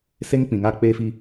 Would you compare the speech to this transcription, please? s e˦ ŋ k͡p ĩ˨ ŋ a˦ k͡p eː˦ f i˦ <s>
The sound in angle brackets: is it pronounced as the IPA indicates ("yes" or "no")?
no